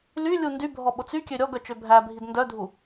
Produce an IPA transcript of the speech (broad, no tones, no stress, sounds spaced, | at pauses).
l y lʲ u n d y bʱ ɔ ɓ o t͡s y kʲ ø ɾʲ ɔ ɡ œ t͡ʃ ø bʱ æ bʱ i d n d œ dʱ u